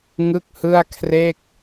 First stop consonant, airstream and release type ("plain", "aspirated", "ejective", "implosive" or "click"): plain